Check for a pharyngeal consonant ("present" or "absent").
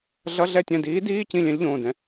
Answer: absent